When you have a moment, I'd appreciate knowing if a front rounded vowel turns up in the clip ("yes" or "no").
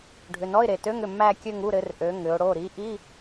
yes